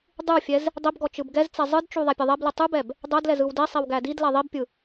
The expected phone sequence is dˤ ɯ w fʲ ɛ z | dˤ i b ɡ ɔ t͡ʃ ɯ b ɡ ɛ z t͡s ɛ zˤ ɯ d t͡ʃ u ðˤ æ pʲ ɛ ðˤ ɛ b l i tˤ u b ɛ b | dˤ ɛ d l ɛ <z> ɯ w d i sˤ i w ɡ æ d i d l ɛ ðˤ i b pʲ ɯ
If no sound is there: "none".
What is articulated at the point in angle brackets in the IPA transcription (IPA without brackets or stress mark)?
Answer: z